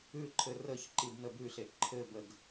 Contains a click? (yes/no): yes